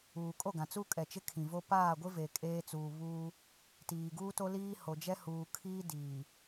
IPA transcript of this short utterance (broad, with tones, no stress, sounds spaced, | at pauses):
uː˨ kʼ o˦˨ ɡ ã˨ t͡s u˦ kʼ ɛ˨ t͡ʃ ɪ˦ kʰ ĩ˨ v o˦ p aː˦˨ ɡʷ ɪ˦ v e˨ kʼ eː˦ t͡s uː˨ β uː˦ | t iː˨ ɡ uː˦ t o˦ l iː˦ h o˨ d͡ʒ ɛ˦ h uː˨ kʰ iː˦ d iː˨